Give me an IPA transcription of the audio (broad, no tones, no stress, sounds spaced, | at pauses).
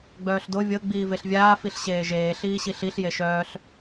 ɡ͡b œː ɬ d o vʲ ɤ ɡ͡b iː v e ɬ vʲ aː f i ɬ ɕ eː ʒ eː ɬ iː ɕ i ɬ i ɬ j e ʃ œː ɬ